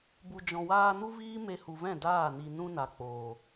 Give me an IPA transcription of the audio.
bu˨d͡ʒɔ̃˨waː˧nu˦ viː˦me˧hu˨vɛ̃˦˨ daː˦˨ni˧ nũ˧na˨ k͡poː˨

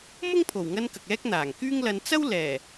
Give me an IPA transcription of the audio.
mʊ˥ŋpʰo˨˩wŋɐ˧n kɐ˨k̚ɛː˥k̚n̪aː˨˩ŋ kyː˥ŋlɐ˧n t͡sɐ˥w lɛː˨˩

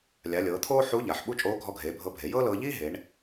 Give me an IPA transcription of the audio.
lʲa˩˧lʲɤː˩˧t̪ʰoː˥ ħu˧˥ ʎa˩ħ ɓu˥t͡ʃʼoː˧˥ ɡʱɔ˧ɡʱeː˩˧bʱɤ˧bʱe˩˧ jɤː˥lɤː˧ʎiː˥ ɦe˩˧ɳ

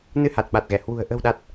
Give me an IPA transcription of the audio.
nɨ˧ha˨˩t̚ɓa˨˩t̚ɣɛ˧˩ hwṳ˨˩ə̯ ʔə̤˨˩wɗa˨˩t̚

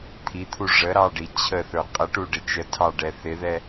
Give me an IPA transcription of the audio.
t̪ʰit̪ʰu ʐəɾɑɖi t͡ɕʰəθə˞ qʼəʈuɖɪ t͡ʃətʰɑɖɛ θɪðɛ

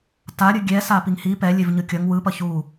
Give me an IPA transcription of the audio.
taɾʲɯ ɡʲɛ sapiŋhi pɛ lʲevɲɯkʲʌŋ wɯpʌ çu

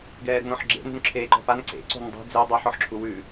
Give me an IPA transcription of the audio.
ɡɛːɾṳnɔ̃ħɡ͡ǁḛ nṳnǁʰeːǃɔ̤pan ǀḛ ǀo̤ndˤṳ d͡ze dˤæħ ɔħǁʰuwʉ

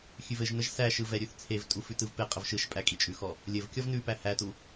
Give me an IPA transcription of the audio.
xʲʉvɘʒnəʒ sæʃɯ vɛɾʲʉθt͡sʰevtʼu fʉtɯvpeqʼəv ʃɯʃpʼæ kʼit͡ʃʼʉxɔ | lʲɘvkʲɔv nʉ pæhætu

